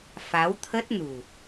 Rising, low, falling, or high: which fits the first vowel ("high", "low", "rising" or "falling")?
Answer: rising